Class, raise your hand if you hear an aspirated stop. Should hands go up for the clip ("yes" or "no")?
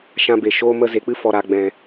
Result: no